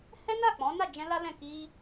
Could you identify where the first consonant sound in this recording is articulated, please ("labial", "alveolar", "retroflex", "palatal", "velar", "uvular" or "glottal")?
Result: glottal